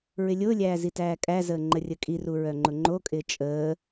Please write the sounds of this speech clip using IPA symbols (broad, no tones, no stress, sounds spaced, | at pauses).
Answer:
ɹ ɪ lʲ ʊː lʲ æː z i t æː kʼ æ z əː ŋ͡ǃ ə rʲ ə kʼ i r u ɹ œ ŋ͡ǃ ʊ ŋ͡ǃ o kʼ ɪː t͡ʃʼ əː